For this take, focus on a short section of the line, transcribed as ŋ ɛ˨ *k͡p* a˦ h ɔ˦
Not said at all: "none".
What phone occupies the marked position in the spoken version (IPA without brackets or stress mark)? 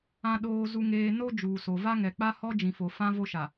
k͡p